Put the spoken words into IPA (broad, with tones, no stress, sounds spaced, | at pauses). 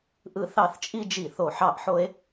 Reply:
ʔ ɯ˥˩ θ ɑ˥˩ θ t͡ʃʼ i˥ d͡ʒ i˥˩ θ o˥˩ ħ ɑ˥˩ ʔ ħ o˥ e̯